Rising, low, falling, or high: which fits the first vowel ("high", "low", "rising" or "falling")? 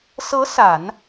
rising